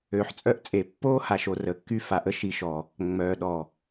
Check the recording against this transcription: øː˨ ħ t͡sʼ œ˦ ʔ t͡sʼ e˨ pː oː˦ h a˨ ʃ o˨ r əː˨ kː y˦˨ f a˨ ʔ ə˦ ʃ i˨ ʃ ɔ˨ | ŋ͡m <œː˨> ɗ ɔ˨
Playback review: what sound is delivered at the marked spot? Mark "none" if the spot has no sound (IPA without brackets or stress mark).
œː˨